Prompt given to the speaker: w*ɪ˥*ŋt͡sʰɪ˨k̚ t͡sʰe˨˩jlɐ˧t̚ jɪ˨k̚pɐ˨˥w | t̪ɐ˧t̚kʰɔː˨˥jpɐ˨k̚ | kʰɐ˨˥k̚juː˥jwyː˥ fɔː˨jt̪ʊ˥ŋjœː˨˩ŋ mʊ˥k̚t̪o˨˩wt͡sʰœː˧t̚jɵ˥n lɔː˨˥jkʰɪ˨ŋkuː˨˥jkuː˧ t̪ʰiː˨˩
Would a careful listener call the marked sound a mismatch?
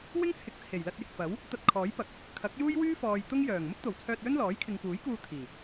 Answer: no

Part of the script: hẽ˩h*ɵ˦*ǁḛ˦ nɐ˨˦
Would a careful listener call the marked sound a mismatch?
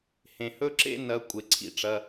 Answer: no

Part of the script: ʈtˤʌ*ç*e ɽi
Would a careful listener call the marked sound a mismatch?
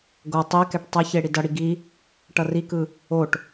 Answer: no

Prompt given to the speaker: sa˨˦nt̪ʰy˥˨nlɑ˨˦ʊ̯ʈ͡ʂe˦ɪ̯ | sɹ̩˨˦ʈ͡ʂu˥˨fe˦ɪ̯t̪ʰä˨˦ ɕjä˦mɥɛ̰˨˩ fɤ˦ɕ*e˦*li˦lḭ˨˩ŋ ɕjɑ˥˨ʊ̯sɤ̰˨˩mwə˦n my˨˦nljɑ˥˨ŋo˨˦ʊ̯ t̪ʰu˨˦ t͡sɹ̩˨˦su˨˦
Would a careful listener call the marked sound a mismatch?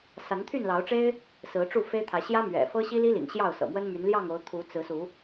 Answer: yes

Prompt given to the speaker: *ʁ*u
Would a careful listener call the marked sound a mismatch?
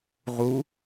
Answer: no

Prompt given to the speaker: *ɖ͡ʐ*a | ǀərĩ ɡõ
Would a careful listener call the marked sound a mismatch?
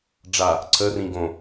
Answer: no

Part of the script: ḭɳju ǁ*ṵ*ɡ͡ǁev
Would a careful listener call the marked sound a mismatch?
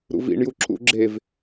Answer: no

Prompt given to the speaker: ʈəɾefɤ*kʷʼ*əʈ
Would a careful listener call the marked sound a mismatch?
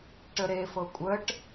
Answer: no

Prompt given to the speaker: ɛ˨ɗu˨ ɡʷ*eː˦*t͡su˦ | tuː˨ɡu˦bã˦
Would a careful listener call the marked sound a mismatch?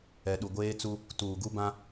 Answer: no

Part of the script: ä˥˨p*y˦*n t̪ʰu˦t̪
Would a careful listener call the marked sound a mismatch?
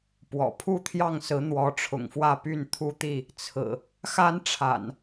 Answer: yes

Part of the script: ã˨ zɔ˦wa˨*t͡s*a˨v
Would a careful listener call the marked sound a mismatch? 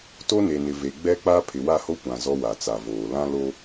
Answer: no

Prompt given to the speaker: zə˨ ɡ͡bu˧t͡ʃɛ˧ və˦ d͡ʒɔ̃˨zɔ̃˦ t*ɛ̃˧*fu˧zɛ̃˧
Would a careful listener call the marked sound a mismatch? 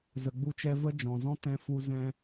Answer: no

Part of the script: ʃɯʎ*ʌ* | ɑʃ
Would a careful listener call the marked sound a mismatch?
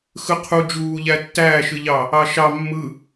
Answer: yes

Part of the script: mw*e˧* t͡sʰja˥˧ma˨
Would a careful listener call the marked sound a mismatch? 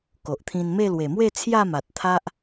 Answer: yes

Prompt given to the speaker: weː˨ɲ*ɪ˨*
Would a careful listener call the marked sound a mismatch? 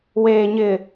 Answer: no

